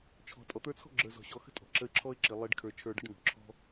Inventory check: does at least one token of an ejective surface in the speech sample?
yes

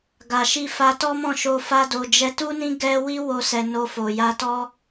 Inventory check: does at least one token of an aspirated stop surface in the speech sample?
no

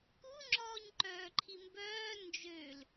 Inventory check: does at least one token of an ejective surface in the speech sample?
no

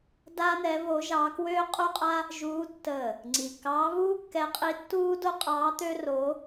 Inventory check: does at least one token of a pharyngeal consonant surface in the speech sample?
no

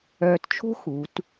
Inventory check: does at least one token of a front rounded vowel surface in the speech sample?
yes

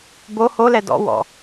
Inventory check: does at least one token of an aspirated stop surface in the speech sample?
no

